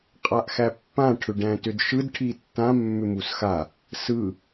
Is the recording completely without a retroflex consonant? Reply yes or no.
no